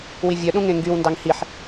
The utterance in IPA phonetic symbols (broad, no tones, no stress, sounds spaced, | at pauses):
w i vʲ œ ɗ ũ ŋ ẽ ŋ ɡ y w n d ɑ ŋ h i ħ